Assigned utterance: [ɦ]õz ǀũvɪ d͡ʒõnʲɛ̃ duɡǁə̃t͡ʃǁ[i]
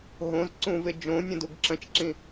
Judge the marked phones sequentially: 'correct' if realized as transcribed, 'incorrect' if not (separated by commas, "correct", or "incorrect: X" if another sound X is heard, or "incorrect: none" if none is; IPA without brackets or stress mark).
correct, incorrect: ĩ